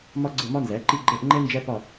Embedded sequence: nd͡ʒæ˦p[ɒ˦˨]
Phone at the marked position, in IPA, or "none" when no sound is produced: ɒ˦˨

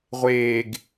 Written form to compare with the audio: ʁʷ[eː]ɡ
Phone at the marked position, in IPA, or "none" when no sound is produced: eː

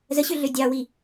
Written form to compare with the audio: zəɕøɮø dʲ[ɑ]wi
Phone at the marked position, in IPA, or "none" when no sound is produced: ɑ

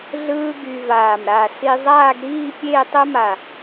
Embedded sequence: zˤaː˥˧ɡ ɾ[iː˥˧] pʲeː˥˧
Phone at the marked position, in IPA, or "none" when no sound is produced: iː˥˧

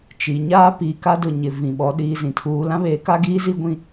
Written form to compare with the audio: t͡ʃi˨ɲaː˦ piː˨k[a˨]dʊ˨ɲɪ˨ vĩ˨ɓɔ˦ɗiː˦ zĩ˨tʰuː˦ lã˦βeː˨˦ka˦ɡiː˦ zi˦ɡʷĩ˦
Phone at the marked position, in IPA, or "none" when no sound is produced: a˦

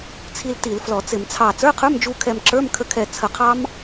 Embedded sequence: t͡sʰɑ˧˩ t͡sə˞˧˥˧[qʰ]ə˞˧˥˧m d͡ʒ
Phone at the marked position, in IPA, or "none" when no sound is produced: qʰ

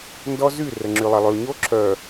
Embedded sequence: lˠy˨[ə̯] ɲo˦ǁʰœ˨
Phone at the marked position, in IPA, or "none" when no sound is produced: ʊ̯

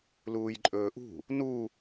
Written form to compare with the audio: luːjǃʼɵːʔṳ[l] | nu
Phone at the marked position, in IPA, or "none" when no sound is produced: none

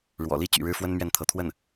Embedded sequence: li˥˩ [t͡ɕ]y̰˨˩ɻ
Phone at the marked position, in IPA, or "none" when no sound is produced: t͡ɕ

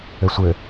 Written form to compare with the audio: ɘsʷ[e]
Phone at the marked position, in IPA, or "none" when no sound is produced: ɘ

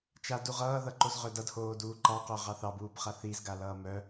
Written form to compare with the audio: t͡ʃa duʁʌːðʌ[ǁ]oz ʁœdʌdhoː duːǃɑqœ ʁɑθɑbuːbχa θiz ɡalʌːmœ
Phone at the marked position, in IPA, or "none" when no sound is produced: ǃ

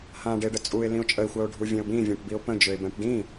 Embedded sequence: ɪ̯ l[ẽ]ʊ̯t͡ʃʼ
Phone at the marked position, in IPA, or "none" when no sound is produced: ĩ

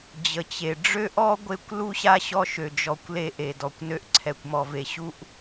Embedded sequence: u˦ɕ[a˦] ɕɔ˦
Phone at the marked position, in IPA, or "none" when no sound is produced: a˦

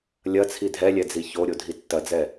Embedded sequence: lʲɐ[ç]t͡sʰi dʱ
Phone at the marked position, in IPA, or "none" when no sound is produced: none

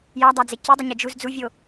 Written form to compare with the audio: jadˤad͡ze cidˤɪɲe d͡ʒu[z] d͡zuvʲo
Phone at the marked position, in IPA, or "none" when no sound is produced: z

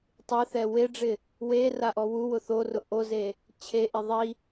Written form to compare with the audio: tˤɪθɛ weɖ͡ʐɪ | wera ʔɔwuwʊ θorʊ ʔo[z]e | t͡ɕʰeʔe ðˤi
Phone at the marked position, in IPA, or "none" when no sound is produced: z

